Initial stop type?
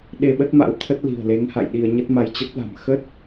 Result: implosive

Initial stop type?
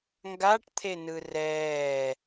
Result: plain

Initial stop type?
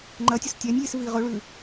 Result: click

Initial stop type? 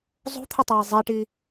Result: aspirated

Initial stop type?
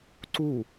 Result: click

